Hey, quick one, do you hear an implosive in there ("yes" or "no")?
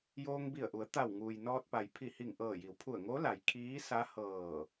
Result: no